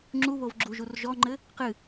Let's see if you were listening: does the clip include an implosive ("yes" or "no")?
no